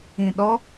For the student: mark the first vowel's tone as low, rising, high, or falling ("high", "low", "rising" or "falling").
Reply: low